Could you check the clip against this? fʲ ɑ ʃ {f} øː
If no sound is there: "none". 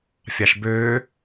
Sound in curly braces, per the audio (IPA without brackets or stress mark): b